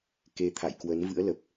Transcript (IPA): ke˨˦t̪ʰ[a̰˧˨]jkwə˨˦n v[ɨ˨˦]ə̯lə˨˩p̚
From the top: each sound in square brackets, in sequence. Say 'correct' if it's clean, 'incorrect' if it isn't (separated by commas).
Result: correct, incorrect